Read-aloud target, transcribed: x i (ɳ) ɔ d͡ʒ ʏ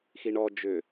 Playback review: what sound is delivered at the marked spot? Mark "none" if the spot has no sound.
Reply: ɳ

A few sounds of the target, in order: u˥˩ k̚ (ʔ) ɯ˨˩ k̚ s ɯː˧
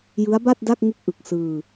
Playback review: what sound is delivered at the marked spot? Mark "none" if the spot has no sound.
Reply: ʔ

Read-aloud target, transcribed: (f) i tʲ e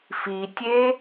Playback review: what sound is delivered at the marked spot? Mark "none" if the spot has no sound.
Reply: f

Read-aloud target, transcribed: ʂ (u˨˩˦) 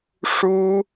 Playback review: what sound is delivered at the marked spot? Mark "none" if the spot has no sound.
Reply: u˥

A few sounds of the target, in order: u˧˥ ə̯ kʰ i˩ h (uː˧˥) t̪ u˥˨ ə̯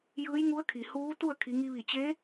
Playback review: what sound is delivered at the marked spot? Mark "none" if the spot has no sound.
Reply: uː˧˥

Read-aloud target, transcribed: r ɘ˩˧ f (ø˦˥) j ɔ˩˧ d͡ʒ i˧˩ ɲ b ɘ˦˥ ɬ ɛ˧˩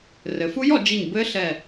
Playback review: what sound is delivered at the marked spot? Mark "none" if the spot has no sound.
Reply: u˦˥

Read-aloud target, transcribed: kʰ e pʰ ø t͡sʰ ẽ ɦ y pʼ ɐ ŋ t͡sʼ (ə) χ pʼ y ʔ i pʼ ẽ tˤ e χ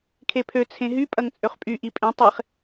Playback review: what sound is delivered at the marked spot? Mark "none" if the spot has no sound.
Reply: ø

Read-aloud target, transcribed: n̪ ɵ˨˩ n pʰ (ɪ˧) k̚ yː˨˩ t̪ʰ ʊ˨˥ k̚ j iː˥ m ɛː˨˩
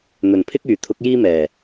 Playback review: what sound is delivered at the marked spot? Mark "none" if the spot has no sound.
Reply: ɪ˥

